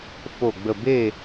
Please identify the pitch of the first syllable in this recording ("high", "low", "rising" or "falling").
falling